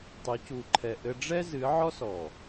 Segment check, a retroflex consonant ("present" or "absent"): present